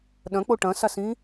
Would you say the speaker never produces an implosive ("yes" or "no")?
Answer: no